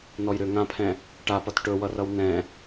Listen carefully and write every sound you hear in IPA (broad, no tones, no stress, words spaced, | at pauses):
nɔjɾʏ ŋãpʰɛ̃ | ʈapʌt ʈɵwʌrʌw nɛ̃